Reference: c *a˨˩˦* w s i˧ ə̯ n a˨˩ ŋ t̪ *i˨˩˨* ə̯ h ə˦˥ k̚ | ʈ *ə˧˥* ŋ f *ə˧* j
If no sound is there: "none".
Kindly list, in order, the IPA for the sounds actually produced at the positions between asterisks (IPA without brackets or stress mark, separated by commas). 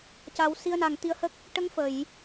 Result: a˨˩˦, i˧˥, ə˧˥, ə˨˩˨